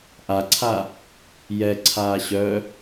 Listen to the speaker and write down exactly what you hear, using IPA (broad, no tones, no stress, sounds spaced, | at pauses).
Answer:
ʔ a ǀʰ a | j ɛ ǀʰ aː ɕ œ